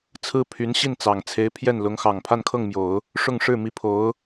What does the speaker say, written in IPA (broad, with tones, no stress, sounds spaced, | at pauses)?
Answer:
t͡sʰ ɹ̩˥ pʰ y˧˥ n ɕ i˥˩ n t͡s ɑ˨˩ ŋ t͡sʰ e˧˥ ɪ̯ pʰ j ɛ˥˩ n l ʊ˧˥ ŋ x ɑ˨˩ ŋ pʰ a˥˧ n kʰ ɤ˥˩ ŋ m j o˨˩˦ ʊ̯ | ʂ ʊ˥˧ ŋ ʂ ɻ̩˥˩ m i˧˥ pʰ o˧˥ ʊ̯